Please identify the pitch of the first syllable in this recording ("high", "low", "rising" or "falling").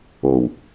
low